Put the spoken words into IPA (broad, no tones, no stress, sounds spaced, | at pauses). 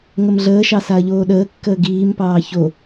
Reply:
ŋ ə m ɮ əː ʃ ɑ s a ɐ̯ ʎ oː ɗ əː kː əː ɡ iː m p ɑː ç o